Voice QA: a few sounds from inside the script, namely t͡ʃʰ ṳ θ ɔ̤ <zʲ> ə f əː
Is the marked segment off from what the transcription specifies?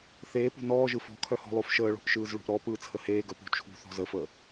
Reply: yes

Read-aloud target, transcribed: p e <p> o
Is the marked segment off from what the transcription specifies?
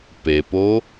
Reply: no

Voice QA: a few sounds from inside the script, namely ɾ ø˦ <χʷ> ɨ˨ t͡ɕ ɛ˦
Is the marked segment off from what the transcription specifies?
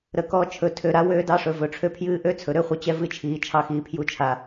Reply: no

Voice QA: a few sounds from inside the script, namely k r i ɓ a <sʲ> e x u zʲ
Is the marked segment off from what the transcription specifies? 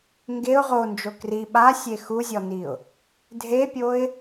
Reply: no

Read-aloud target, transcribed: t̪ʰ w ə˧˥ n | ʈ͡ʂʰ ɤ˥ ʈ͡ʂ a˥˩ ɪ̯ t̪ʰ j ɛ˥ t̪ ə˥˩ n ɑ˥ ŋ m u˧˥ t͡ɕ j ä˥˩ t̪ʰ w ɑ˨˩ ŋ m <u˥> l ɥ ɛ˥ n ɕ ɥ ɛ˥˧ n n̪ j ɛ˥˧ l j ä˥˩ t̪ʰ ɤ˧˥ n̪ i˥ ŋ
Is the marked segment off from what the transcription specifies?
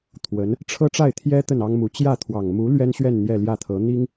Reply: yes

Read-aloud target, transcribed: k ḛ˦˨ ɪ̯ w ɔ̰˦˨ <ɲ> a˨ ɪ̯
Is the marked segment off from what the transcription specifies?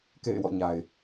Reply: no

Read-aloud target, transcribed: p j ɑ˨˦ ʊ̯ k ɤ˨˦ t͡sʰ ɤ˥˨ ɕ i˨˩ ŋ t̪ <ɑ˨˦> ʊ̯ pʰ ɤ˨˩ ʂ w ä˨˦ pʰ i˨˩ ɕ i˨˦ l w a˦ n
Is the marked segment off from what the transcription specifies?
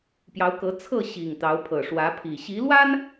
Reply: no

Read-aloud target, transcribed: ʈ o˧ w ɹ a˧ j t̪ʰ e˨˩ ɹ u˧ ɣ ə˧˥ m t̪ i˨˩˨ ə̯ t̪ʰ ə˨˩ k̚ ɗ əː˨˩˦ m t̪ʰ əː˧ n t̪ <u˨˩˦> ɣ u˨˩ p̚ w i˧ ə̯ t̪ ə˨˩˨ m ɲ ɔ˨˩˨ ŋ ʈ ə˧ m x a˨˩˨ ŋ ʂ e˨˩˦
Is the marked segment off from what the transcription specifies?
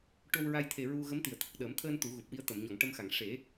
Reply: no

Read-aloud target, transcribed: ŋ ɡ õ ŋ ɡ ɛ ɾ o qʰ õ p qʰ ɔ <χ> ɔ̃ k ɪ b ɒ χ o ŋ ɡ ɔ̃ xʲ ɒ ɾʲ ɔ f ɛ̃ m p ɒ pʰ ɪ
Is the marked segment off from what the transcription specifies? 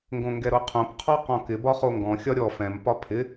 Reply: yes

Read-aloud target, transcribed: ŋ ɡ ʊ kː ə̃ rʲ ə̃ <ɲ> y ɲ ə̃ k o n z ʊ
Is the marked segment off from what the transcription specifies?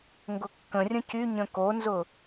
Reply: yes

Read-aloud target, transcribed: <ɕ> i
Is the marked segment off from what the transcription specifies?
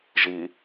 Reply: yes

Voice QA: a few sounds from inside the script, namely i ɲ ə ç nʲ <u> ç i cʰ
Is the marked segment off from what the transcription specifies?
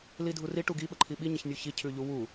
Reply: no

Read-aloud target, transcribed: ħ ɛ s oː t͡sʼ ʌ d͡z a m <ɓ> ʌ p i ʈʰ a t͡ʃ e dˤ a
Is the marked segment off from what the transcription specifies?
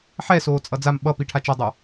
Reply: no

